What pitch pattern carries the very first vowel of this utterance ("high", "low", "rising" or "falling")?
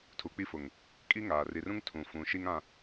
rising